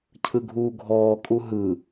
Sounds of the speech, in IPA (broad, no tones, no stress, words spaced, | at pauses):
cʰɯɡʱuːɡʱɔːkʼu ɦɯ